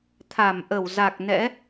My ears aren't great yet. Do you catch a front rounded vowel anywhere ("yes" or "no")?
no